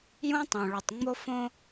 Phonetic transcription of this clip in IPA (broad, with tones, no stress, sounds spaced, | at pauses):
j ũ˦ tˤ õ˨ ɭ o˨ tˤ ŋ͡m o˦ f õ˦